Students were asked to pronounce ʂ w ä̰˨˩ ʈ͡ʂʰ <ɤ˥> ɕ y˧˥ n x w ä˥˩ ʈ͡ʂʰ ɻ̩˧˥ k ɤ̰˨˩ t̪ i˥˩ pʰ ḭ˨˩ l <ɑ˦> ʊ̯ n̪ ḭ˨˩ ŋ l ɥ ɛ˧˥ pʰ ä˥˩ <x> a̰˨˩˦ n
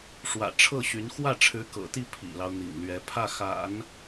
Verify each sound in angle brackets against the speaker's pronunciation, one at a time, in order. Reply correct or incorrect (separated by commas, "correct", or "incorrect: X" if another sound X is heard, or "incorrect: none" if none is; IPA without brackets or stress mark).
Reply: incorrect: ɤ˥˩, correct, correct